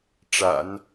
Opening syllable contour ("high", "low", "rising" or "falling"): low